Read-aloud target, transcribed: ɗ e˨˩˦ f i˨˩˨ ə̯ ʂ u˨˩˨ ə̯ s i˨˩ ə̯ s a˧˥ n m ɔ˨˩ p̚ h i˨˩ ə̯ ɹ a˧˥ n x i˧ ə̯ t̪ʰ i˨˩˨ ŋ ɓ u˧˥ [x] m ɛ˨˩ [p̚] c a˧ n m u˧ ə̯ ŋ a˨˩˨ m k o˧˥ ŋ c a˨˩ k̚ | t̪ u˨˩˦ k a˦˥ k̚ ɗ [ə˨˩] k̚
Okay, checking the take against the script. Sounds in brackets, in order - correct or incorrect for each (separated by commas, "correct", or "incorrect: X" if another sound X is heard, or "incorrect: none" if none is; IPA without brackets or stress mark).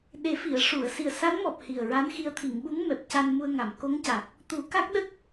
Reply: incorrect: ŋ, correct, incorrect: ə˦˥